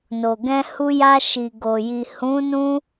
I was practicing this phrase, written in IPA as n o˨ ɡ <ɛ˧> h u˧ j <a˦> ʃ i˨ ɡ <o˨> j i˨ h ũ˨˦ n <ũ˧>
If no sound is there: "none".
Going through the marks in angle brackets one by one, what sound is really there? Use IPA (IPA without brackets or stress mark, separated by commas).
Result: ɛ̃˧, a˧, o˨, ũ˧